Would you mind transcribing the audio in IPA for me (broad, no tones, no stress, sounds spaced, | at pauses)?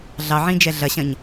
ɮ ɑ ʕ ĩ d͡ʒ ɛ ɮ ɐ ɕ ɐ̃ ɲ